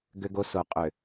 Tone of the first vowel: high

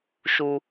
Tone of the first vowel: high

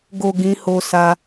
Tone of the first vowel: low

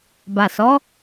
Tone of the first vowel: low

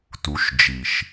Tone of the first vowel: rising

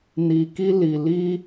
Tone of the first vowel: low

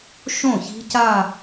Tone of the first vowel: falling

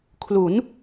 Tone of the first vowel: rising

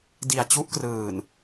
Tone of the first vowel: low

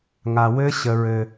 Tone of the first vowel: low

